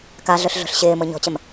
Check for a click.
absent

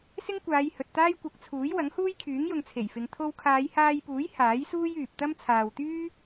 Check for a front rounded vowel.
present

